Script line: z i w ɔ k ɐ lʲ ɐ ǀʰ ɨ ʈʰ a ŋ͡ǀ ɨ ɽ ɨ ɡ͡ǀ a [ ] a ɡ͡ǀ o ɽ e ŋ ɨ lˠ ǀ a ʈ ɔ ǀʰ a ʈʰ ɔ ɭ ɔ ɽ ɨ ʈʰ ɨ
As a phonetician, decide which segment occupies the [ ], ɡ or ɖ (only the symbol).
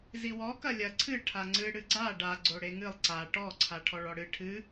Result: ɖ